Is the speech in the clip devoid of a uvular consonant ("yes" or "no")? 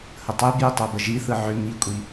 yes